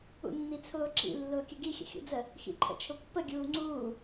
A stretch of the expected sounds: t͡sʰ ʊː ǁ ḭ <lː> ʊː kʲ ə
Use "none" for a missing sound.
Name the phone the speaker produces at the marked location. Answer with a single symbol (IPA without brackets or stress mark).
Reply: lː